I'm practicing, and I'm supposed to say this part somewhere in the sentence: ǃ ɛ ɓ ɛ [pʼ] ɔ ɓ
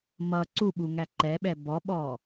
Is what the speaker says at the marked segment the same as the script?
no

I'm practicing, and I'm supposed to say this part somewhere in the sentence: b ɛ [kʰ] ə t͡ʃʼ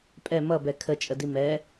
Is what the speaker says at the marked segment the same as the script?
yes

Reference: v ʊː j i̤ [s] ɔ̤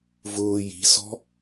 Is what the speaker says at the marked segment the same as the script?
yes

